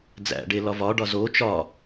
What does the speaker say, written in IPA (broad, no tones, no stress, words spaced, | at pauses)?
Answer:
d͡zæ̰ɖe lɒvɒɖɒ zo t͡ʃɒ